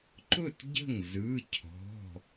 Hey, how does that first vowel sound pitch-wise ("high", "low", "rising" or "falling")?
falling